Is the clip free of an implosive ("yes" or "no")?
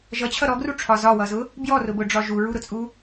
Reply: yes